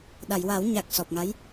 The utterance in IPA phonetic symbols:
ɗ a˨˩˨ j w a˨˩˦ w ɲ a˨˩ k̚ s ɔ˨˩ p̚ ŋ a˧˥ j

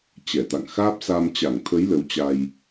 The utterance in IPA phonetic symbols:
t͡ɕ ɛ˧˩ t̪ a̰˧˨ ŋ x aː˦˥ p̚ s a˧ m t͡ɕ a˧˩ ŋ t̪ʰ ə˨˦ j l ə˨˦ w t͡ɕ a˧ j

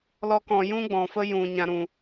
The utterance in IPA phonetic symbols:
l ɔ˧ k ɔ̃˨ j ũ˦ ɡ͡b ɔ̃˨ f ə˦ j ũ˨ ɲ ã˨ ɾ ũ˨

